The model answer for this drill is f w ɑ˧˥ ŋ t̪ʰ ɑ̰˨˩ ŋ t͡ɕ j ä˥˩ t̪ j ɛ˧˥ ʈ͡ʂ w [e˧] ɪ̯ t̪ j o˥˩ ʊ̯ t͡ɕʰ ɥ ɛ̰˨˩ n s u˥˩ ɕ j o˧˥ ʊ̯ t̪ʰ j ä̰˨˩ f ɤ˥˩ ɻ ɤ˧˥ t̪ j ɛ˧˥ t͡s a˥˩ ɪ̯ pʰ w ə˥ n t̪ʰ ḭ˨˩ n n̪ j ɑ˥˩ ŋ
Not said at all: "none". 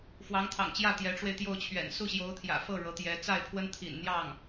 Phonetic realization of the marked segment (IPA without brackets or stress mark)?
e˧